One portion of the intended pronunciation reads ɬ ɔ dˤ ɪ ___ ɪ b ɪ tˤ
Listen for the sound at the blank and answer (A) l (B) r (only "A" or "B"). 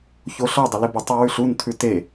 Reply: A